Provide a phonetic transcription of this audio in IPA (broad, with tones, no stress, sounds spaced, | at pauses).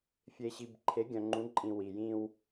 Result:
fʲ e˨ ɕ i˨ b ǃʰ e˨˦ ɡʲ œ̃˨ ŋ͡ǃ ũ˨˦ ǃʼ ĩ˨ w i˨ j ĩ˦ w